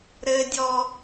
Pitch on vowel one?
low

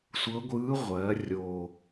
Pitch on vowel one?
rising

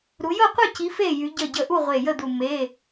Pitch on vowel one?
rising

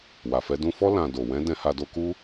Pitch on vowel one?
low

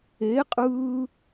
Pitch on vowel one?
rising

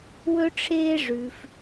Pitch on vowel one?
high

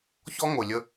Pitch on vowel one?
high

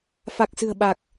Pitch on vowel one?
low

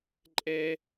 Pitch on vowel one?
high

